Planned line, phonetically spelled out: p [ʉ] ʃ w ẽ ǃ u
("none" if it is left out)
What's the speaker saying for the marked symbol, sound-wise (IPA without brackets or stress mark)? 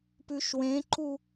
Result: ʉ